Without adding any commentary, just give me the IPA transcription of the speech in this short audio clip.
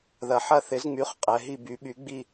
ðɐ˩˧ħɐ˦˨θɪ˩˥zŋ͡my˩˥χ qʼɛ˩˧ɦi˦˨by˩˥ɓy˩˥ ɡ͡bi˦˨

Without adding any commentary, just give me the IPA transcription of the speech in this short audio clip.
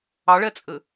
ɑɭɛt͡sʼɘ

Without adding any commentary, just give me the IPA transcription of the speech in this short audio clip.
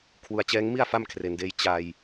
kʰwu˨˩a̯t͡ɕɛː˦˥ŋmi˥˩a̯ fa˥˩mkʰre˩˦ndeː˧j t͡ɕa˧j

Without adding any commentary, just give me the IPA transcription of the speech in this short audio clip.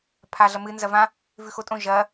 pʰaɮɐmɨ nzɐvã | vʉxotʼõ ʒɐ

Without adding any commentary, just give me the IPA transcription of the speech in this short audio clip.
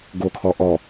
ɡokʰɔ ʔɔ

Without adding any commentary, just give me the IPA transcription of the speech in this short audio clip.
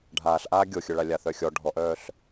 ɖʱaːɬʔaː ɡʲoxʲœɭa lʲaθœxʲɔ ɖʱɔʔœːɬ

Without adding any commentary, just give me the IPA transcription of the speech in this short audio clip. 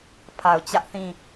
pʰa˨ʊ̯t͡ɕä˦ʔθĩ˦˨

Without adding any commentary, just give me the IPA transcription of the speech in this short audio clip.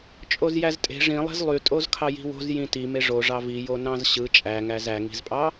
t͡ʃʼozjæztʼe̤ ʐĩlˠe̤z lˠytʼoz kʰɑji̤wo̤z jĩti meʐo ʐɑvi jonɑ̃zɕɯ t͡ʃʼæŋæz æŋi̤zpʼɑ

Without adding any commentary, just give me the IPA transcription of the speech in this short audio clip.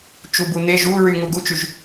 t͡ʃubun̪eʒ u ɹyŋu ɡut͡ʃyʒ

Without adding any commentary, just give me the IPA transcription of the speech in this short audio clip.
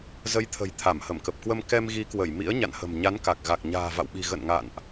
zə˨˦jt̪ʰə̤˨˩j t̪ʰa˧˩mhə˧˩mkə˨˩p̚kwə˧m kɛ˧mɣi˨˦kwə˧˩j mḭ˧˥ə̯ ɲa̰˧˨nhə̤˨˩mɲa˨˦nka˨˩k̚ ɣa˨˩k̚ɲa̤ː˨˩va̰˧˨wɓi̤˨˩ ɣə̰˧˨nŋa̰˧˨nʔ

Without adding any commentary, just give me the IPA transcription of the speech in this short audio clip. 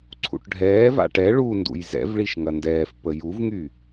ǀʰṵʈɖʱɛːva̰ ʈɛ ɭundṵj zɛ̰vɭiʃ ŋɐndɛːf pəjuvŋy

